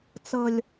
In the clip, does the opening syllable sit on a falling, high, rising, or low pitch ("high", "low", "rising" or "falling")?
low